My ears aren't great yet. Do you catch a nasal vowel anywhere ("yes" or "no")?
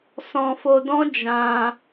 yes